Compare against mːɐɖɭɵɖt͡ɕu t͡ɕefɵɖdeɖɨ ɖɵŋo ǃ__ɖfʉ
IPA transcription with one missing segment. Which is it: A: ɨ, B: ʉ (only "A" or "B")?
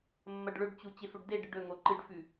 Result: A